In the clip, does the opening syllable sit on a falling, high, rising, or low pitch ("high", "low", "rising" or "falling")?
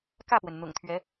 falling